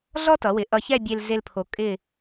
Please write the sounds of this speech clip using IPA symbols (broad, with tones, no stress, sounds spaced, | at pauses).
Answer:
ɮ ɔ˥ t ʌ˩˧ w ɪ˩˧ ʔ ʌ˧ ç ɛ˥˧ bʲ e˧ l z e˧ l pʰ o˩˧ kʼ ɪ˧˩